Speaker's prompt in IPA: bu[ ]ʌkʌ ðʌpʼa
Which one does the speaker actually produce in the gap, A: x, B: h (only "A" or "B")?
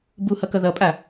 B